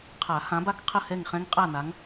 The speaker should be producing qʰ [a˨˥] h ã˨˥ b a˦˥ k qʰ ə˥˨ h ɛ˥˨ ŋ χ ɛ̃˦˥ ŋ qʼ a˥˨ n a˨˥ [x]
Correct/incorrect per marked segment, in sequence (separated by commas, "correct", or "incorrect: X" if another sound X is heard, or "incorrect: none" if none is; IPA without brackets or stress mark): incorrect: a˨˩˦, incorrect: ŋ